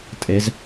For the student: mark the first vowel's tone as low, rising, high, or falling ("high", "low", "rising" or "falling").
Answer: rising